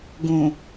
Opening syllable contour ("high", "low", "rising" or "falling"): low